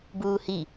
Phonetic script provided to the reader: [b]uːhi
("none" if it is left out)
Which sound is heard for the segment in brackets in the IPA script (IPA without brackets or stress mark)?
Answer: b